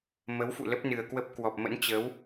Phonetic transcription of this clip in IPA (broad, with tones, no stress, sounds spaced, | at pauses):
m ə˨˦ w f ṵ˧˨ l ə˦˥ p̚ n ɨ˨˩ ə̯ k w ə˦˥ p̚ k w ɔ˨˩ p̚ m ə̰˧˥ n t͡ɕ ə˨˦ w